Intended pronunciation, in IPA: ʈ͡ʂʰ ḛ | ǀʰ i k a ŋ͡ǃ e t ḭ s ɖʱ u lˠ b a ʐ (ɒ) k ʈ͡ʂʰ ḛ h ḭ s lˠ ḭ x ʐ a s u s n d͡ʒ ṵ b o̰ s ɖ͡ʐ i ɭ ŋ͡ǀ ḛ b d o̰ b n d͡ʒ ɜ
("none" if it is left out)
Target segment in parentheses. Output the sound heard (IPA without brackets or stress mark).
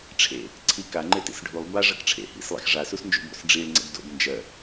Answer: ʌ